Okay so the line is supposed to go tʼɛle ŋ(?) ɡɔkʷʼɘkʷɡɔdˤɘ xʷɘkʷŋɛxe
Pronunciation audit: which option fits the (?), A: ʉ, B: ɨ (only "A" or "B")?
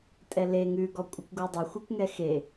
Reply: A